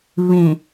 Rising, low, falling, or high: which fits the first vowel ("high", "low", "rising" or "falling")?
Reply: low